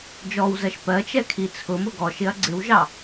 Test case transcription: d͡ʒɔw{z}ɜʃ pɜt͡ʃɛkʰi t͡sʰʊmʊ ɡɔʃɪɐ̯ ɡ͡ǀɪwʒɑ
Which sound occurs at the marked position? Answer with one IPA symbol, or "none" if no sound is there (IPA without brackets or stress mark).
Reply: z